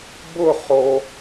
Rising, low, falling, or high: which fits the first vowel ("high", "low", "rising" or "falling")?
falling